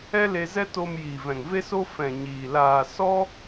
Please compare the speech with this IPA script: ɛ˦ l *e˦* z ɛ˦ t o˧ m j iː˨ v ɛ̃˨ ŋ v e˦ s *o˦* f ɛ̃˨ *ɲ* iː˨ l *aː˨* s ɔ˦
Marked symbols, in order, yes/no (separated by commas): no, yes, yes, yes